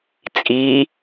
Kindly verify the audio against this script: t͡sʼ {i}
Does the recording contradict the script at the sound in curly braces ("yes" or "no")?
no